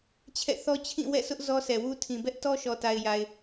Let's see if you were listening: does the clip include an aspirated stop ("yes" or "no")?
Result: yes